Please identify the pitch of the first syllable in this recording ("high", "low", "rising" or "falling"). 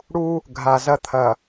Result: high